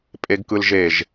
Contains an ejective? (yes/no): yes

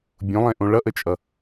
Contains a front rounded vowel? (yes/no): no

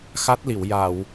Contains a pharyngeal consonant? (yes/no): no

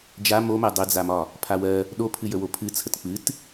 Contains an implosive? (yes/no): yes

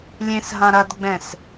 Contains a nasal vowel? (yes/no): yes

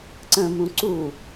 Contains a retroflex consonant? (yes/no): no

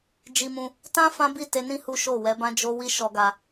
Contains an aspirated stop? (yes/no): no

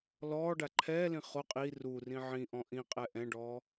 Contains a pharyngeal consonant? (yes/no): yes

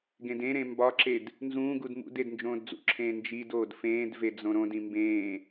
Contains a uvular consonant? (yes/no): no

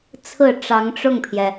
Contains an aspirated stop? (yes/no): yes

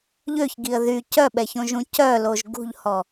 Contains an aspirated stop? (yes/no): no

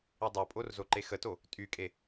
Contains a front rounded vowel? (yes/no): yes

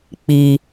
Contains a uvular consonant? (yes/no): no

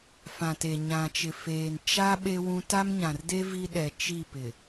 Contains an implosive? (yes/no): yes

